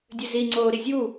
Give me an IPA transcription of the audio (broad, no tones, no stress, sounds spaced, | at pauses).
dʲ ø z i ŋ͡ǀ oː ɾ i zʲ uː